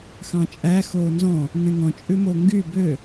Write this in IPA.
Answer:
xɑ̃t͡ʃʼæ xoːnzɔ̃ | ŋɛ̃ŋɔ̃ t͡ʃʼʉmoŋɡy bø

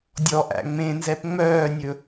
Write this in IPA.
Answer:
dʲɔʔæ̰ ŋ͡mẽnzɛp ŋ͡mœːnʲɵ

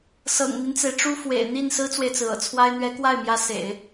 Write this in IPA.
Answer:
sɤ̰˨˩ŋn̪i˦nt͡se˩ɪ̯ʈ͡ʂu˥ fwḛ˨˩ɪ̯ n̪i˥˩n sɹ̩˥t͡swe˨ɪ̯t͡sɹ̩˩ ɤ̰˨˩t͡sʰwa˥ɪ̯ n̪ɥɛ˧˥kwa˥˩ɪ̯mjä˧˥ sḛ˨˩˦ɪ̯

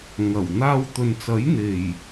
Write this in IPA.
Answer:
ŋɐ˨˩w n̪aː˧wt̪ɵ˨nt͡sɐ˨˥j n̪e˨˩j

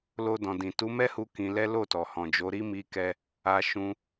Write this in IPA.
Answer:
lo˧dɔ̃˨dĩ˨ tu˨˦mɛ˦hu˧ kĩ˧lɛ˦ lo˦˨tɔ˨ hɔ̃˨d͡ʒo˨˦ɾi˦ mi˧kɛ˧ | a˧ʃũ˧

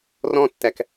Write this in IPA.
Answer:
rɔ̃tːæk

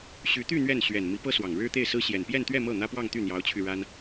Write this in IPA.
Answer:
ɕy˧˥t̪y˥˧ n̪ɥɛ˥˩n ɕɥɛ˨˩n mi˧˥pɤ˥swɑ˨˩ŋ ɻɻ̩˥t̪e˥˩ɪ̯sɹ̩˥ ɕjɛ˨˩npjɛ˥˧nt̪ɥɛ˥˧ mɤ˥˩n̪ä˥pwɑ˥˧ŋ t̪y˥˩n̪jɑ˧˥ʊ̯t͡ɕʰy˧ ɻa˥n

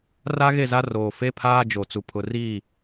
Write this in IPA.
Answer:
ra˦ɣe˦˨za˦ roː˨fe˦pʰaː˦d͡ʒo˨ t͡su˨pʰʊ˨riː˦˨

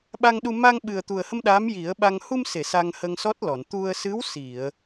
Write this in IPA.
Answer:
ɓa˧ŋɗu˧ ma˧ŋɓɨ˨˩ə̯t̪u˨˩ə̯hə˧m ɗaː˧˥mji˨˩˦ə̯ɓa˧ŋ hu˧mse˨˩˨ sa˧ŋhə˧ŋsɔ˦˥t̚lɔ˨˩˨n t̪u˧ə̯ sɨ˧˥wsi˨˩˨ə̯

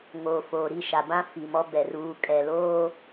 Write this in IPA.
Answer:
ŋoː˨foː˨ɾi˦˨ʃa˨ bã˦fi˨ mɔ˦bɛ˨ ruː˨kʼɛ˨loː˦

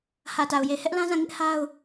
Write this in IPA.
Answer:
hä˨ta˨ʊ̯je˨ hɛ˦ʔlã˦zã˦˨ ŋɪ˦ʔ ha˦ʊ̯

